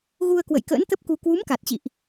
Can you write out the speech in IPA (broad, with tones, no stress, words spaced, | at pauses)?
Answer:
ɣu˧ə̯kwə̰˧˨jkə̰ː˧˥nt̪ə˦˥p̚ ku˧ kwu˨˦mka˨˩t̚t͡ɕḭ˧˨ʔ